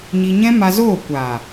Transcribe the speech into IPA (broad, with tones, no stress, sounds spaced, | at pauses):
ɲ i˧ ɲ ɛ̃˦ m a˧ z oː˦˨ kʷ aː˨